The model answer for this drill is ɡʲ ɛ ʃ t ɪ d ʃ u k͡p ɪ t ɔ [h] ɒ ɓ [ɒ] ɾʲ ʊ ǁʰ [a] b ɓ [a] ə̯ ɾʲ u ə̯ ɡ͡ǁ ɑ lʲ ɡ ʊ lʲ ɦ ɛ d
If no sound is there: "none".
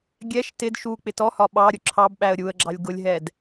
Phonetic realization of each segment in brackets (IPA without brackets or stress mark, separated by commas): h, ɑ, ɑ, æ